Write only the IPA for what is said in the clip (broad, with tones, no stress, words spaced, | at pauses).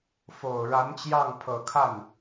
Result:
fo˨˩ʊ̯ ɻa˧˥nt͡ɕjɑ˥˩ŋ pʰɤ˨˩kʰa˥˩n